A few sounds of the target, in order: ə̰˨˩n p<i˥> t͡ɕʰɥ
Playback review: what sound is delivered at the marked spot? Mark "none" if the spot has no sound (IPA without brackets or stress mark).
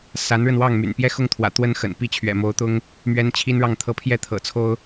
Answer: i˥